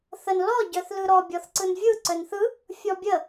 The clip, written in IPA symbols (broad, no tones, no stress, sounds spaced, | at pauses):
θ ə n l ɔ ɟ œ θ l ɯ ɾ ɔ bʲ ɔ θ ǀ ɯ n vʲ ɯ ǀ œ n θ ɯ | fʲ ɔ bʲ ə